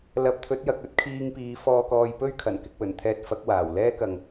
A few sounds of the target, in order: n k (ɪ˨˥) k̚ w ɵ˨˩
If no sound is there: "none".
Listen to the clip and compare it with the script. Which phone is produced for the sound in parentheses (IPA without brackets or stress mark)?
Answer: ɪ˧